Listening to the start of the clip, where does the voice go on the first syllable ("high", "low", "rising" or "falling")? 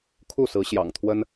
falling